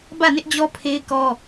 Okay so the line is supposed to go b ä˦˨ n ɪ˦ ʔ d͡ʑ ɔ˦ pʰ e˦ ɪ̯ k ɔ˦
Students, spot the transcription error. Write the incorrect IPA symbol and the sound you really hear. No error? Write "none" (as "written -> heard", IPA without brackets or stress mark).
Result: none